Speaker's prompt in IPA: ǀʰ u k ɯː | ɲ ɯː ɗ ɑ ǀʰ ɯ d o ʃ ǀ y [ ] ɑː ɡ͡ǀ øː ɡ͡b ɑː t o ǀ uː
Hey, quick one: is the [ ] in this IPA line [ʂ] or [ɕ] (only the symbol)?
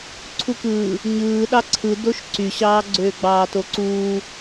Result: ɕ